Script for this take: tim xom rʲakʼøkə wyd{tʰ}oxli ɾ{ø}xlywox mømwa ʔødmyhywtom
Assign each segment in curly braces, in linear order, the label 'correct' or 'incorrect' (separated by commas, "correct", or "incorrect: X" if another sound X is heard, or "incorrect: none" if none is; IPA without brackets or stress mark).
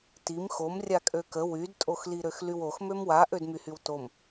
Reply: incorrect: tʼ, correct